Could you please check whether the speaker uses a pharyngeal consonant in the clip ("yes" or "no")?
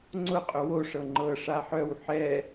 yes